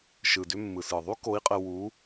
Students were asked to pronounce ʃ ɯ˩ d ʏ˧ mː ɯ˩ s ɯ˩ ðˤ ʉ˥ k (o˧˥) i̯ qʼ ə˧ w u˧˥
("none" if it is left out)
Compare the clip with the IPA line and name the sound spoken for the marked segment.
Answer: o˧˥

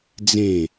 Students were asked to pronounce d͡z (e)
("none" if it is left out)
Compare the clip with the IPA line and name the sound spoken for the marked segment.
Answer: ẽ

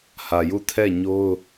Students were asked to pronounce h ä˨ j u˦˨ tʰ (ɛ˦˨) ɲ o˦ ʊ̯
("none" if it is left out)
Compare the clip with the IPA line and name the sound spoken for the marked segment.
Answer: ɛ˦˨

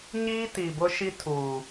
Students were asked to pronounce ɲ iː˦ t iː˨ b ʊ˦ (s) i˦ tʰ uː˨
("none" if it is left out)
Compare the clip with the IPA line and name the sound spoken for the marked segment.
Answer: ʃ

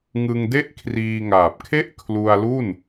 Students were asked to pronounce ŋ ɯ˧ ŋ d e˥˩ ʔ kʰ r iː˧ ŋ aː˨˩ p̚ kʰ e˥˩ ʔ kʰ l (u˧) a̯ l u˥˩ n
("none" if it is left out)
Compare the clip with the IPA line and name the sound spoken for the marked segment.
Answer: u˧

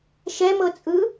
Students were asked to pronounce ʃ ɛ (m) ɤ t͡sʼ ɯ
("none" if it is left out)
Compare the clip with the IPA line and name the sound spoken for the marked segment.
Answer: m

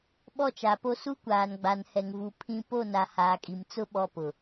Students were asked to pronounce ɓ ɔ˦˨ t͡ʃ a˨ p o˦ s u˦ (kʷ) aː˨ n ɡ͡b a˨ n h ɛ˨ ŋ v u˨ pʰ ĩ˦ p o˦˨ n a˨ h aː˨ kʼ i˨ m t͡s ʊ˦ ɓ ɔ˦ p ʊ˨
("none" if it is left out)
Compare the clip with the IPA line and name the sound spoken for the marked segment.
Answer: kʷ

